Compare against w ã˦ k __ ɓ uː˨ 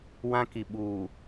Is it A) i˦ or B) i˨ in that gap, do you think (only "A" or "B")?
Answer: B